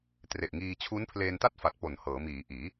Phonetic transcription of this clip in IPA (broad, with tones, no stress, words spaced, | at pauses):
tre˨˩ʔŋiː˧ t͡ɕʰu˦˥npʰleː˧nta˥˩t̚fa˨˩t̚ po˨˩nhɤː˩˦miː˩˦ʔiː˩˦